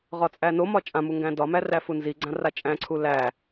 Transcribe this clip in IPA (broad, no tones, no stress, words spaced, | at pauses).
ʁɒt͡sʼænomɒ t͡ʃʼãmu ŋɡæ̃dɒmæ ræfunziɡ͡ǀã rat͡ʃʼæ̃ǀʰu læ